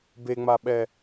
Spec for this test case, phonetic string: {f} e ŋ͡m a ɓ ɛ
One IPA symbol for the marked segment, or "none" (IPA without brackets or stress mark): b